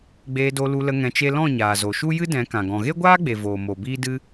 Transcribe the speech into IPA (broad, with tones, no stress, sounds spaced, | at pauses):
ɡ͡b eː˧ d o˧ l u˧ l ə˧ ŋ ɛ̃˧ t͡ʃ e˦ l ɔ̃˦˨ ɲ aː˨ z o˨ ʃ u˦ j ɨ˦ d ɛ̃˨˦ k ã˨ ɡ ɔ̃˨ ɣ e˦ ɡʷ aː˦ ɡ͡b e˨ v oː˨ m o˨ b iː˦ d ɨ˦